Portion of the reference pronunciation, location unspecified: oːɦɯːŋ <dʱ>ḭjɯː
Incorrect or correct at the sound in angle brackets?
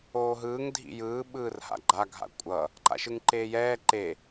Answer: correct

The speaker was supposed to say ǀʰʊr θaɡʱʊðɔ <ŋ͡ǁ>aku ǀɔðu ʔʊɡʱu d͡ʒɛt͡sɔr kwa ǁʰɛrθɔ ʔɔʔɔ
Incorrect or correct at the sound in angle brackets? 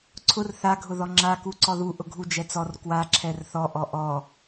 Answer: correct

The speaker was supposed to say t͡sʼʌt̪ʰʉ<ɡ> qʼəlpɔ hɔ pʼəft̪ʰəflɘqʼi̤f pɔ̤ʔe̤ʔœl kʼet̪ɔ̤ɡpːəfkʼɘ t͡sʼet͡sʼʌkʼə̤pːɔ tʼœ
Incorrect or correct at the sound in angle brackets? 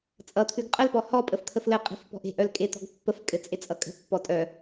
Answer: correct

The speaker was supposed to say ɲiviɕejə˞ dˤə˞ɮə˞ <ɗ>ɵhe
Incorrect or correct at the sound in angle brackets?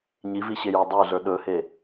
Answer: correct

